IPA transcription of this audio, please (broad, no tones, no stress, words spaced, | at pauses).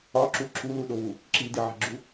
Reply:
ɒǁu ǁuluɗoβu | ǁidiʕi̤ɡ͡ǁu